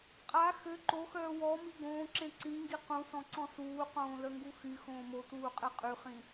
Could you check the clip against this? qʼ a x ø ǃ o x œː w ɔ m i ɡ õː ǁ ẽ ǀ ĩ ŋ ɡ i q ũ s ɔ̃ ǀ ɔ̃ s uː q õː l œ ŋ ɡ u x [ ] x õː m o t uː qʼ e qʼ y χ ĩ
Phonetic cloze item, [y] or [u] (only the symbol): y